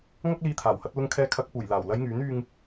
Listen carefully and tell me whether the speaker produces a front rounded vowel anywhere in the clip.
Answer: yes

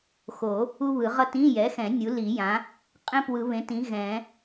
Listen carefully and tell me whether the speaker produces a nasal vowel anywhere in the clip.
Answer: yes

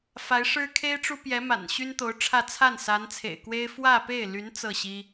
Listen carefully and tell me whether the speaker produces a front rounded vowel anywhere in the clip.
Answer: yes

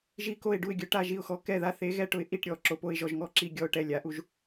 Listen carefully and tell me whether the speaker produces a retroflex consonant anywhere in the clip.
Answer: yes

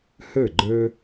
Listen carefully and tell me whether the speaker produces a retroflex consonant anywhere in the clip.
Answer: no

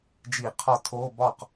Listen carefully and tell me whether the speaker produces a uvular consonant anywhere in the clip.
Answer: yes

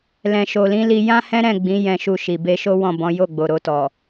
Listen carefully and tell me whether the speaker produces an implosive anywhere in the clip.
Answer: no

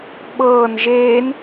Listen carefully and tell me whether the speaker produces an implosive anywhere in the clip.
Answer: yes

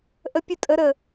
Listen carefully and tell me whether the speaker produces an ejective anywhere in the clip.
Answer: yes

